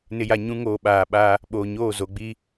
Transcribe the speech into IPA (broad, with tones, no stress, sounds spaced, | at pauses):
n ɪ˨ j a˨ ɲ ũ˦ ŋ oː˨ ɓ aː˨ ɓ aː˦ | ɓ oː˨ ɲ oː˦˨ z o˨ ɡ͡b iː˦